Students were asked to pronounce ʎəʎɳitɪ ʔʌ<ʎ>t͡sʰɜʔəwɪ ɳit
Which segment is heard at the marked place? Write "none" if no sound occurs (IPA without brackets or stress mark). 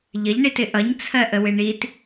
ɲ